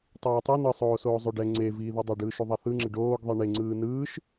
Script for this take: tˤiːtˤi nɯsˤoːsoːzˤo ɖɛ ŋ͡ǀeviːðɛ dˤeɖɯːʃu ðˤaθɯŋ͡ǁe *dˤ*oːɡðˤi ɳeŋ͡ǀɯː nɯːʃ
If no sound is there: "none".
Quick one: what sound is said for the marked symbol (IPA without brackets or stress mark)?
ɖ